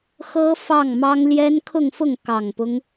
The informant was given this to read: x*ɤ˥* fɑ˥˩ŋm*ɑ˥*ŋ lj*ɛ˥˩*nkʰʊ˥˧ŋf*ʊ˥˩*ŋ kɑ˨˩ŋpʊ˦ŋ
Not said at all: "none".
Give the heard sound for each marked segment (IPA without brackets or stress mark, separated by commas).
ɤ˥, ɑ˥, ɛ˥, ʊ˥˩